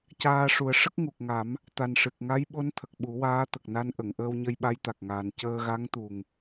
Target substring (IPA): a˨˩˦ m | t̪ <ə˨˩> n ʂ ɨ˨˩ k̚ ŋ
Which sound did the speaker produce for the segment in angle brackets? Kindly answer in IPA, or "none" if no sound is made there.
a˨˩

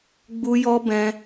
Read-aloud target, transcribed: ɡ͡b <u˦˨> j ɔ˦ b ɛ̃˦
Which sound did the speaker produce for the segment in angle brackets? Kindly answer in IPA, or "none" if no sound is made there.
u˦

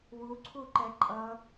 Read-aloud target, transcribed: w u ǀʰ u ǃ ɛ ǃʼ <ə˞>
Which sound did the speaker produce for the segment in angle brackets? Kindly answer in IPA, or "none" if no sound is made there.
ʌ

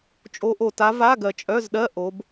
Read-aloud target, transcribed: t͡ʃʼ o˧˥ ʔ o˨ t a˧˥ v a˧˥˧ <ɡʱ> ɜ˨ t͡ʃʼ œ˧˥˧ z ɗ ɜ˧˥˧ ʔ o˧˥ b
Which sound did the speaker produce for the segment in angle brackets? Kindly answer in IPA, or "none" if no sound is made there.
ɡ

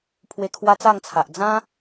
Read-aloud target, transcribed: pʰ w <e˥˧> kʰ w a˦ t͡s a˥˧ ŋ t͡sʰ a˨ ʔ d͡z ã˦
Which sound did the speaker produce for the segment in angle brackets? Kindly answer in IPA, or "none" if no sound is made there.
e˧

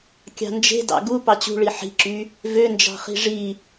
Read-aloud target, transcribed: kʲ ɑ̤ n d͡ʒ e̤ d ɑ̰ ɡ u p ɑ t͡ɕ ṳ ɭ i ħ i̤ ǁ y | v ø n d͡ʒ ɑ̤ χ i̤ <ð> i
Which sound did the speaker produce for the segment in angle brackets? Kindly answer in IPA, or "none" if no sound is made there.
ʐ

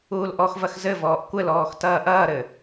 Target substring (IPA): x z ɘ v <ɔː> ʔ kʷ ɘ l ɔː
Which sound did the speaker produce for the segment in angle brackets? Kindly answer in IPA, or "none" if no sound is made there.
ɔː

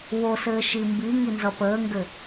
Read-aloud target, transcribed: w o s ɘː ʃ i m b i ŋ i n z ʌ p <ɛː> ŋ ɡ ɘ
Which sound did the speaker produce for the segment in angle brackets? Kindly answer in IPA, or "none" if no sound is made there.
əː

